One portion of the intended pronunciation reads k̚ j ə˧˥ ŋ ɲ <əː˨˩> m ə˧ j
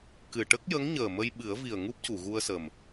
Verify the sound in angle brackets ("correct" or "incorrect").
correct